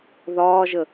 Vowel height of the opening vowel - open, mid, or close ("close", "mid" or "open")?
open